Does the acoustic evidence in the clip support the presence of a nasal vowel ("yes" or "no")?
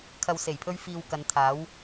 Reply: no